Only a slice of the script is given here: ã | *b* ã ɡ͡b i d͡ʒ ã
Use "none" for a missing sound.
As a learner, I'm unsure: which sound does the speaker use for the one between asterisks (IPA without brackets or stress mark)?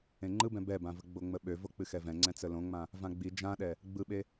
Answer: v